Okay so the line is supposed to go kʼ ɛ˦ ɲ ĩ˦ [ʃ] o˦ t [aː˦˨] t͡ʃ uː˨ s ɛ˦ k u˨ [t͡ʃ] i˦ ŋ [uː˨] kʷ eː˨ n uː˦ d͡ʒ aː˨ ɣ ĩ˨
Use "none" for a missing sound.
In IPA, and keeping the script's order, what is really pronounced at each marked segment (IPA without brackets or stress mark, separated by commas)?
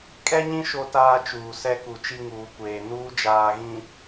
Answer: ʃ, aː˦, t͡ʃ, uː˨